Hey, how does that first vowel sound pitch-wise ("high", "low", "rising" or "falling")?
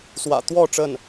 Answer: low